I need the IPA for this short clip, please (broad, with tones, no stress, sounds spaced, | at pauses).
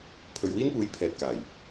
pʰ ɵ˨ ɥ w iː˥ n p uː˨˥ j pʰ ɛː˨ t̚ k aː˨˩ j